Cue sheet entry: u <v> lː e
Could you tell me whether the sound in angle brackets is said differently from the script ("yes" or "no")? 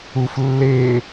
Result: yes